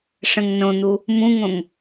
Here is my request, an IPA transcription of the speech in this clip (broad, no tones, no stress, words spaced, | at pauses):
ʂə̃ŋnõn̪u | mũŋõŋ